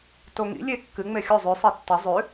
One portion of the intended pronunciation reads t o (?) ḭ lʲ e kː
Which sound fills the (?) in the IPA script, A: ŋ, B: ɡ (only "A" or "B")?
A